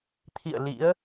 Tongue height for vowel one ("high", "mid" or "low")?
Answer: high